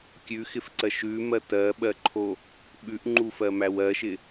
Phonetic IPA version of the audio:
kʲ ʉ x ɪ f ǀ ɜ ʃ ʉ m ɜ t ɜ ɓ ɜ ǃʰ o | ɓ ʉ ʔ ŋ͡ǃ u f ɜ m æ w ɜ ʃ ɪ

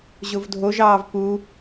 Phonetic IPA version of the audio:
ʑ ʊ v dʱ o ʒ ɑː v p u

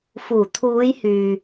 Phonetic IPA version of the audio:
f uː˨˩ t̪ʰ uː˨˧ j h yː˨

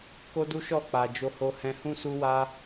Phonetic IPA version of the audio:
k o˦ d u˦ ʃ ɔ˦˨ k͡p a˧ d͡ʒ o˧ h o˧ h ɛ̃˧ h ũ˦ s u˦ w a˦

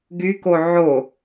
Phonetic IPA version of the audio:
ɡ y k o ʕ o

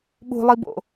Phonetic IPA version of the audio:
ɓ ṳ lˠ i b o̰

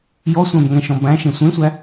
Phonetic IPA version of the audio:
j ɔ sʷ æ̃ b ŋ ɛ̃ ʃ ɔ̃ b æ̃ ʃ ẽ sʷ ẽ sʷ æ

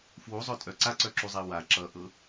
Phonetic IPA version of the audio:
f w u zˤ œ tʼ œ ǀ a ǀ œ ǁ u zˤ e w a ǁ ʌ ʔ ɤ

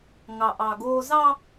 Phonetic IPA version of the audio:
ŋ ɑ˨ ʔ ɑ˨ ɡ oː˦ z ɑ˦

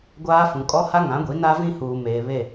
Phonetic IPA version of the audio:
ɡʷ aː˦ f ũ˨ kʼ ɔ˦ h a˦ ŋ ã˨˦ ɡʷ i˨˦ n a˦ v ĩ˦ h uː˨ m eː˨ β e˦˨

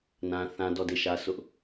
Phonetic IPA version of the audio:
n ã˦ θ ã˦ d ɔ˦˨ d e˦˨ ʃ ä˦ s ʊ˦ ʔ

